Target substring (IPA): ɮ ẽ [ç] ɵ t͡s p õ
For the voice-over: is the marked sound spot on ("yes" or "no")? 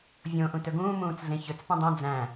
yes